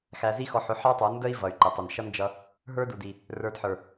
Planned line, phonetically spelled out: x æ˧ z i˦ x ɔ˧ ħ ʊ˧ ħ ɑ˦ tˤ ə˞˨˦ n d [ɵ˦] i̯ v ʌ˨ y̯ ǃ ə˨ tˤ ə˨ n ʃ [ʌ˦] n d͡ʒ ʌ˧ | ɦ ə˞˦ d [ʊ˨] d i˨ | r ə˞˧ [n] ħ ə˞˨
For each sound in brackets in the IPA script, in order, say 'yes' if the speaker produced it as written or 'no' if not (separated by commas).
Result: no, yes, no, no